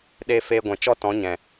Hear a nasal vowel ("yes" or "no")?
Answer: yes